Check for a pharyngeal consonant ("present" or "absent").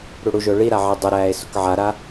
present